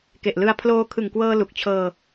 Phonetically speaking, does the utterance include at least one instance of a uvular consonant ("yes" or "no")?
no